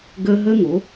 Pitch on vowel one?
high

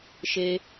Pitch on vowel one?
high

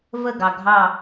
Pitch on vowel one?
falling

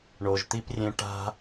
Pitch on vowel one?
low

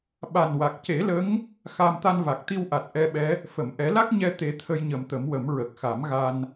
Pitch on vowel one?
low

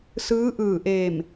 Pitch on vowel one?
rising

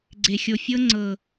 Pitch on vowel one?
low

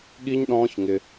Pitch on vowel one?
high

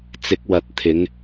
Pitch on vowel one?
rising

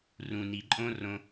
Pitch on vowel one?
low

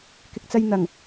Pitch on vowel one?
low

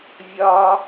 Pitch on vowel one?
low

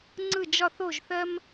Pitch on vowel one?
falling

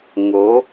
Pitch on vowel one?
rising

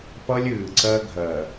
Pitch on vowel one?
high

